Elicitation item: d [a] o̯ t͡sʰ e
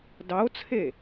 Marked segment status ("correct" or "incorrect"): incorrect